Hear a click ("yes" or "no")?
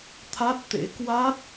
no